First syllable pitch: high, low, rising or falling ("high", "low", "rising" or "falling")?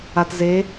low